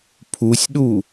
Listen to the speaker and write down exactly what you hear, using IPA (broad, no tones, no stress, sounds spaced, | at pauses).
pʰ u sʲ ɗ u